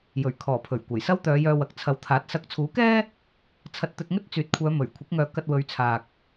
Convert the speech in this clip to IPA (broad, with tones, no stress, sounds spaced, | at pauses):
j ɵ˨˩ ɥ kʰ ɔː˨˩ pʰ ɵ˨˩ ɥ kʷ ɐ˨˩ j s ɐ˥ w t̪ œː˨˧ j œː˧ w ɐ˨ k̚ t͡sʰ ɐ˨˧ w t̪ʰ aː˨˥ t̚ s ɐ˨˥ k̚ t͡sʰ uː˨˥ k ɛː˥ | t͡sʰ ɐ˧ t̚ t̪ ɵ˧ t̚ ŋ ɵ˥ t̚ t͡s yː˨ t̚ kʷʰ œː˨˧ m ɵ˨˩ ɥ kʷʰ ɪ˨˥ k̚ ŋ œː˨˧ k ɐ˧ t̚ w ɵ˨˧ ɥ t͡sʰ aː˨ k̚